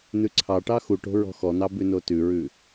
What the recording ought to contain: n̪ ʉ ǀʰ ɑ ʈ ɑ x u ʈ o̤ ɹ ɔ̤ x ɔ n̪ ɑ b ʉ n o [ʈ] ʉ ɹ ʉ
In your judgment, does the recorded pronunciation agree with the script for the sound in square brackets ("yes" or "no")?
no